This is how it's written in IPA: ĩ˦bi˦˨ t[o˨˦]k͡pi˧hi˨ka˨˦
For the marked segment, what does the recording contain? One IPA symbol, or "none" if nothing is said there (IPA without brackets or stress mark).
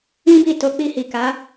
o˨˦